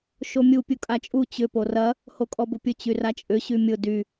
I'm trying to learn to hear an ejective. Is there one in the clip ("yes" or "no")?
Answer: yes